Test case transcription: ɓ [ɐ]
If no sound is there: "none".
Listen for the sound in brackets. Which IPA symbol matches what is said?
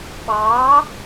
ɑ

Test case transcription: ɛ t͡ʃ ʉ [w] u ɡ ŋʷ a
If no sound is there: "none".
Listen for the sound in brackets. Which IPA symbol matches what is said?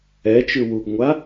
w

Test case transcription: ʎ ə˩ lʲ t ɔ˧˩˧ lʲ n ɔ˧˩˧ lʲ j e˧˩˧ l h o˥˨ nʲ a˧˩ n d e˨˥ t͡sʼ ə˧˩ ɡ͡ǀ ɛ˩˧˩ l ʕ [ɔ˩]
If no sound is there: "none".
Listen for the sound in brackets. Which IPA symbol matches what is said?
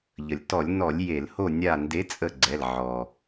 ɔ˩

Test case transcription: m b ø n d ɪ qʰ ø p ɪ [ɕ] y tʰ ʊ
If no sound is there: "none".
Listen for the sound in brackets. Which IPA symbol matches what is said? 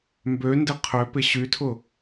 ɕ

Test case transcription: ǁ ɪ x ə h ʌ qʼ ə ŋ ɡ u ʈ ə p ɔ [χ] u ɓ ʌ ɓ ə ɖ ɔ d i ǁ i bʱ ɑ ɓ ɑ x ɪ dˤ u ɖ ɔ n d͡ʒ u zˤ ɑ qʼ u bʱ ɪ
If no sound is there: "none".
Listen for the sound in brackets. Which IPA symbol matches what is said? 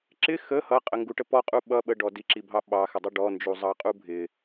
qʼ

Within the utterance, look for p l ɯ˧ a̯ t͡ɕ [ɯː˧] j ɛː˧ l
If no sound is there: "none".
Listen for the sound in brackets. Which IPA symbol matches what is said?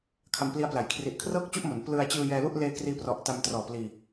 ɯː˧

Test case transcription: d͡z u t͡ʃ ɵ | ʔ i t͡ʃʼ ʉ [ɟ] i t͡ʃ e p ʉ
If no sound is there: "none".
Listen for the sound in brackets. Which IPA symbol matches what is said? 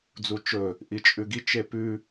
ɡ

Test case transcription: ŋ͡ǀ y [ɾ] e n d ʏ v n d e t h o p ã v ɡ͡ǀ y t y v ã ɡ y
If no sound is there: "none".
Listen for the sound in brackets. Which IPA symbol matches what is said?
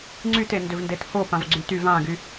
t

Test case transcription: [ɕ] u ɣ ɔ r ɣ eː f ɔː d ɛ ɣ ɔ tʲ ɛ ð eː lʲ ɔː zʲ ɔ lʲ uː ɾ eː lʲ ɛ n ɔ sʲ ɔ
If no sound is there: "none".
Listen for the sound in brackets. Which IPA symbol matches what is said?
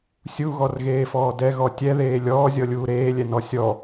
sʲ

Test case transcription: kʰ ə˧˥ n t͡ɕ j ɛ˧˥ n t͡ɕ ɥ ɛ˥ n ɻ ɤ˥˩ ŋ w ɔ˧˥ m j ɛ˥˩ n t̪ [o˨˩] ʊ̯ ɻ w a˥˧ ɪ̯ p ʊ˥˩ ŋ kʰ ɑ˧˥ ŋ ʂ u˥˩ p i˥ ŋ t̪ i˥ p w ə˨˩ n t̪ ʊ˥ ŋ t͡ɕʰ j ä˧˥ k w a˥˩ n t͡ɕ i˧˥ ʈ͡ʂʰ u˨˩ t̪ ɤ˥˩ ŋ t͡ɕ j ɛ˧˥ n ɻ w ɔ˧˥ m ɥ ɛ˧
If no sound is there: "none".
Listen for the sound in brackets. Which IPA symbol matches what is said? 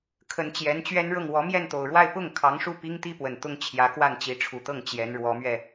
o˨˩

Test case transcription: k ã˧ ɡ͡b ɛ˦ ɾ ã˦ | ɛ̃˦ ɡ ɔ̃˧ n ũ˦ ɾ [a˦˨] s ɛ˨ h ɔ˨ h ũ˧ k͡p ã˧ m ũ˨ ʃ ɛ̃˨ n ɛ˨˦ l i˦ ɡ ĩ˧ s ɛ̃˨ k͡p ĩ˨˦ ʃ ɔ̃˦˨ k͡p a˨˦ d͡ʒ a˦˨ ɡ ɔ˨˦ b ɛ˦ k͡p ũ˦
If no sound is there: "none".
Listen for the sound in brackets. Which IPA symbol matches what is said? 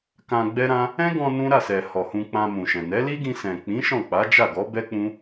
a˦˨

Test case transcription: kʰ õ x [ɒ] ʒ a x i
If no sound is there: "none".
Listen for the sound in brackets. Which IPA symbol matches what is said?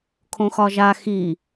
ɒ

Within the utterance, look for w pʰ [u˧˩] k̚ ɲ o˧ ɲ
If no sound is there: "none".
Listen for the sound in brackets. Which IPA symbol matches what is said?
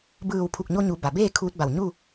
u˧˩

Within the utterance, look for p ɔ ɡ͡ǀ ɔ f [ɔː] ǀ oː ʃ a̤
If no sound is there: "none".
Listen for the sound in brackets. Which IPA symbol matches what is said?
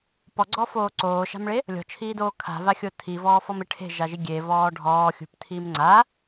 oː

